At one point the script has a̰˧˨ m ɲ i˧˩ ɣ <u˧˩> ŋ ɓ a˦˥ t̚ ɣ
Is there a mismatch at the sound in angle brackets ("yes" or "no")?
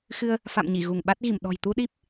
no